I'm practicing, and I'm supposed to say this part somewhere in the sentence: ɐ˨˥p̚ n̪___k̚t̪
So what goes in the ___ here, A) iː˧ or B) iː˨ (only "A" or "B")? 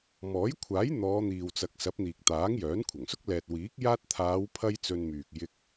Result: B